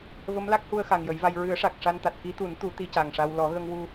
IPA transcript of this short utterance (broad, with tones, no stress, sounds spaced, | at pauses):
v ə˧˥ m l a˦˥ k̚ h u˧ ə̯ x a˨˩ ŋ j ə˨˩˦ j v a˧ j ɹ ɨ˨˩˦ ə̯ ʂ a˨˩ k̚ ʂ a˧ n t̪ a˨˩ t̚ k i˧˥ t̪ u˨˩˦ n t̪ u˨˩˦ t̪ i˧ c a˨˩ ŋ ʂ a˧ w l ɔ˨˩˦ ɣ ə˧ ŋ w u˧